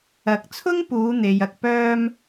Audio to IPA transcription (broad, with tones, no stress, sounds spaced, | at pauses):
ɐ˨˥ k̚ t͡sʰ ʊ˥ ŋ p uː˨˧ n̪ e˨ j ɐ˧ k̚ p œː˧ m